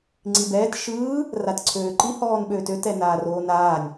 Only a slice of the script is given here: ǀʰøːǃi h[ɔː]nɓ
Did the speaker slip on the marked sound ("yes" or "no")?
no